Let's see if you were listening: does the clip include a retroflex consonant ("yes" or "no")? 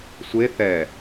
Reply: no